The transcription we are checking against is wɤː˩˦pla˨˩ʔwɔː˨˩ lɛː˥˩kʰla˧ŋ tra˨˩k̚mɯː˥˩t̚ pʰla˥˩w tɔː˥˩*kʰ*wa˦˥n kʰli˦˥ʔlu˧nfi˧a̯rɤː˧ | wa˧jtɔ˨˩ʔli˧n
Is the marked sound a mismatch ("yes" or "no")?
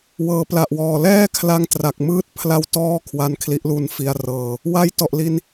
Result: no